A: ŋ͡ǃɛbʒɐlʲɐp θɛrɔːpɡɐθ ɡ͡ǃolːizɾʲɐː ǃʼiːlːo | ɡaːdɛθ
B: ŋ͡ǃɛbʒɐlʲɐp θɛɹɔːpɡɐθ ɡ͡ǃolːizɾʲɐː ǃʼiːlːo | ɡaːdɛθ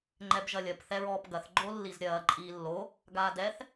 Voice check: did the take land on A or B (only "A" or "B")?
B